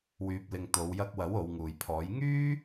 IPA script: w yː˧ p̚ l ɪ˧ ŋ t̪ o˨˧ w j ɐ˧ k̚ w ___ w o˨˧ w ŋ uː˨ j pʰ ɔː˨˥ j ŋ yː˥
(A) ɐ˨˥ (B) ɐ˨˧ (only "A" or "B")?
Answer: A